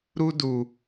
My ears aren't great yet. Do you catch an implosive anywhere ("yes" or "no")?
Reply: no